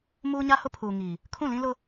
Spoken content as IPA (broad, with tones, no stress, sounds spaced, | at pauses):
m uː˦ ɲ a˦ h ʊ˦ pʰ uː˨ ŋ iː˨ | kʰ ũ˦˨ l ĩ˦ l ʊ˦